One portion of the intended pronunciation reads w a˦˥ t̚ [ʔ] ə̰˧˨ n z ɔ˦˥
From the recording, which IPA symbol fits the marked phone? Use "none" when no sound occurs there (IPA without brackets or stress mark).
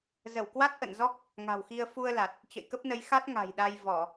ʔ